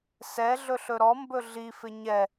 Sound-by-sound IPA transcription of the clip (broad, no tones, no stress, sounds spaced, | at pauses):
s ɛ ɮ ɵ ɬ ɵ ɾ ɔ m b ɵ ɮ i f ɪ ɲ ɛ